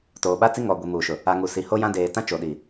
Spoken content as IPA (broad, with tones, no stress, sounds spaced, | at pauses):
t oː˨ ɓ a˦ t͡s i˦ ŋ ɔ˨ ɡʷ i˨ m uː˨ ʃ ʊ˨ | a˨ ŋ u˨ s i˨ h o˦ j ã˦ d eː˨ t ã˦ t͡ʃ o˨ ɗ i˨